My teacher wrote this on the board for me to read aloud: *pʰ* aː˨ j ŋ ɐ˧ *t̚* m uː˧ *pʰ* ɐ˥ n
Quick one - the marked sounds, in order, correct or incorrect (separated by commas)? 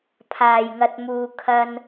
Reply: correct, correct, incorrect